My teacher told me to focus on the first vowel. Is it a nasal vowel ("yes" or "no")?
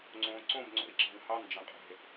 yes